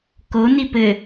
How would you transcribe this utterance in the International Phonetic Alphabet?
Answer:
k o n i p ɘ

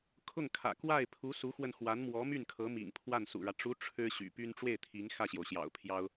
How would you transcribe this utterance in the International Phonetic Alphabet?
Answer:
kʰ ʊ˥˩ ŋ kʰ ä̰˨˩ k w a˥˩ ɪ̯ pʰ u˧˥ s u˧˥ x w ə˧ n x w a˧˥ n m w ɔ˧˥ m y˥˩ n kʰ ɤ˧˥ m ḭ˨˩ ŋ pʰ w a˥˩ n s ṵ˨˩ ɻ ä˦ ʈ͡ʂ u˧˥ ʈ͡ʂʰ ɻ̩˥ ɕ y̰˨˩ p y˥ n ʈ͡ʂ w e˥˩ ɪ̯ t̪ʰ i˧˥ ŋ x ä˥˩ ɕ j o˩ ʊ̯ ɕ j ɑ̰˨˩ ʊ̯ pʰ j ɑ˥ ʊ̯

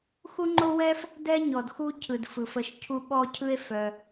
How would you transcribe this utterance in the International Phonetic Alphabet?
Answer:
x u˥ ŋ͡ǃ o˥ w ɛ˥ f | d ɛ˦ ɲ ɔ˩ d x u˦ cʰ ɯ˩ d f ɯ˩ f ə˨ ʃ cʰ u˦ ɓ ɔ˥ cʰ ɯ˥ e̯ f œ˨

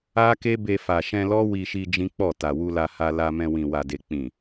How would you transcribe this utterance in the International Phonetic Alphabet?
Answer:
a˦ k e˦ b e˧ f a˨ ʃ ɛ̃˧ l ɔ˦ w i˧ ʃ i˧ d͡ʒ ĩ˦ k͡p ɔ˦˨ t a˨ w u˧ l a˧ h a˧ l a˧ m ɛ̃˧ w ĩ˨ w a˨ d e˨ k͡p ĩ˨

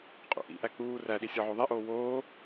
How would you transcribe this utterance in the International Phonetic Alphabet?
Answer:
qʼ ṵ ʔ ḭ ʔ æ k͡p uː r æ ɗ i sʲ ɒ ʕ o ðˤ i ʔ oː w oː

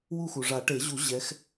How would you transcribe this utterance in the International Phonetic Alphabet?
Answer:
w u˥˧ x u˩ ʐ a˨˩˦ ʈ e˨˩˦ ʑ u˨˩˦ ʑ ɛ˨˦ x

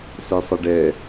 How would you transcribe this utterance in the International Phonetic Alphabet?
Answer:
s ɛ sˤ ɤ ɖ ɛ

